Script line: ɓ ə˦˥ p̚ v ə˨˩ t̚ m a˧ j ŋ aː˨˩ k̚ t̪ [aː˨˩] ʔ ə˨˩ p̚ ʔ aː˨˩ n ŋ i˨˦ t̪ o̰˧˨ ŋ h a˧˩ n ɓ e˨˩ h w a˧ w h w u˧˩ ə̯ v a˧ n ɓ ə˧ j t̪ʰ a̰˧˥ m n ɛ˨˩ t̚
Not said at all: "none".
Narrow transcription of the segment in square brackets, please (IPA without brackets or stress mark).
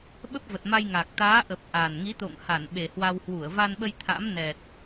aː˨˦